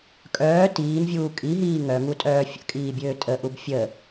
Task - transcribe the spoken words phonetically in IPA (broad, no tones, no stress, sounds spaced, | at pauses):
kʼ œː t iː n vʲ uː kʼ i ɦ iː ŋ œ ŋ u tʼ œː fʲ ə̰ kʼ iː bʲ øː tʼ ə ʔ u b fʲ ə